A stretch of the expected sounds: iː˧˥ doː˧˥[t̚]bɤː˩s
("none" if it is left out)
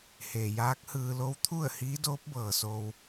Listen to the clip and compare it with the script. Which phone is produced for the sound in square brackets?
p̚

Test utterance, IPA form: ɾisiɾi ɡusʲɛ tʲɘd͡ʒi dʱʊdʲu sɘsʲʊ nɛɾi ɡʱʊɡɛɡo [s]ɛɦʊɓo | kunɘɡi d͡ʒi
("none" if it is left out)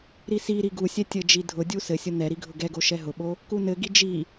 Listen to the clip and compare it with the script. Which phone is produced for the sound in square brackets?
ʃ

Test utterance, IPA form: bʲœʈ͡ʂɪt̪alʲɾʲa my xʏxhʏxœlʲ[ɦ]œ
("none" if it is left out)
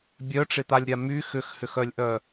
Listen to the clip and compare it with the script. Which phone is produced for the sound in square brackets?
ʔ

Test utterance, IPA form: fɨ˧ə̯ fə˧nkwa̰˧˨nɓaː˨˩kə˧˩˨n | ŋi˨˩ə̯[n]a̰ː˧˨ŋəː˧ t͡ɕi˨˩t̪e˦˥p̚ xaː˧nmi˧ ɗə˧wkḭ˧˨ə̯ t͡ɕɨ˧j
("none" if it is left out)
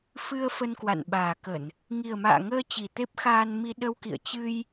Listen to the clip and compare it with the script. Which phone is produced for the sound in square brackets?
m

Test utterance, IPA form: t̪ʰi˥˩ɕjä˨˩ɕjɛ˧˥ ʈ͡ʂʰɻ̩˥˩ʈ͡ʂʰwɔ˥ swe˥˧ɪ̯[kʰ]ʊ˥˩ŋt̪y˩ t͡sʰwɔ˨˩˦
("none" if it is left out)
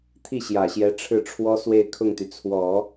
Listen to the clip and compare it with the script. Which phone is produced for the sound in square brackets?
kʰ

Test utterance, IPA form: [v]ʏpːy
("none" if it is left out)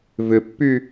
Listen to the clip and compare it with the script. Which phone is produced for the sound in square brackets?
v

